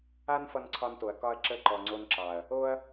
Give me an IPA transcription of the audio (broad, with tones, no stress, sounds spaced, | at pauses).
a˦ n f ʌ˧ n ǀʰ ɒ˧ n t o˨ ɐ̯ k ɒ˧ ɐ̯ ǁ ə˧ ǃ ɔ˨ ŋ͡ǀ o˧ n ǁ ɑ˨ ɐ̯ | o˦ ɐ̯